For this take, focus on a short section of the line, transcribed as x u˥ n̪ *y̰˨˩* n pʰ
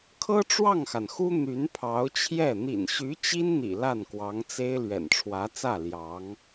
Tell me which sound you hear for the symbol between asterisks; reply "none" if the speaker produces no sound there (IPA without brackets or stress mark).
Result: y˧˥